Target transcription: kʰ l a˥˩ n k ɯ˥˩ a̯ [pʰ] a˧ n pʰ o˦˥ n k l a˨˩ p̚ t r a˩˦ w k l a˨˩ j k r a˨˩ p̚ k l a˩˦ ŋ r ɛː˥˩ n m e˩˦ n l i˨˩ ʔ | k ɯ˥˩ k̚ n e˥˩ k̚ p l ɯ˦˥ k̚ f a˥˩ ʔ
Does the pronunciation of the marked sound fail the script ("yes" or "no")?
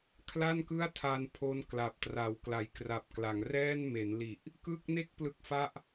yes